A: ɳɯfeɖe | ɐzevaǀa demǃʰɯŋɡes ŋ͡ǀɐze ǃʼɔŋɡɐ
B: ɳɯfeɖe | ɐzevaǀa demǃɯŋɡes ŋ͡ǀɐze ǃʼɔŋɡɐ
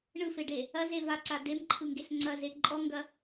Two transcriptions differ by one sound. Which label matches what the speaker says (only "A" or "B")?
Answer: A